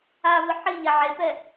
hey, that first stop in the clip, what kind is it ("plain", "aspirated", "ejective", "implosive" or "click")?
plain